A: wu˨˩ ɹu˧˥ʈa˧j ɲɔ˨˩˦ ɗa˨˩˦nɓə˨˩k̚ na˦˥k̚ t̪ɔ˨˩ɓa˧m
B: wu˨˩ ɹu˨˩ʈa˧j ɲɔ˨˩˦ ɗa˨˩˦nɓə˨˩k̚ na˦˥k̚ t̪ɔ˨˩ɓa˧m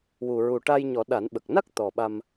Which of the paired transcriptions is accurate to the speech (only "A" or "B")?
B